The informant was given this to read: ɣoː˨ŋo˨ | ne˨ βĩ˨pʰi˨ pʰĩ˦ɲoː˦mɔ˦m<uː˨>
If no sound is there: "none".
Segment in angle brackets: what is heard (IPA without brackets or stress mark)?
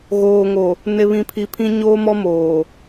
oː˨